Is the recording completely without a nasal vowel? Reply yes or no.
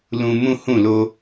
no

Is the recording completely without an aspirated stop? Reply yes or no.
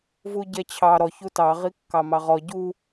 no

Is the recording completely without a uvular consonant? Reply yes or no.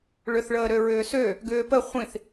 no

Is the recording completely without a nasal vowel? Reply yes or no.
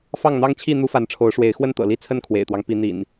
yes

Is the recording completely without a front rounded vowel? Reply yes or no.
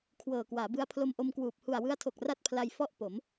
yes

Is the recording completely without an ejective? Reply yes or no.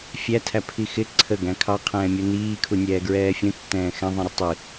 yes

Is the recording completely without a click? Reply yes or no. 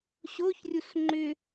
no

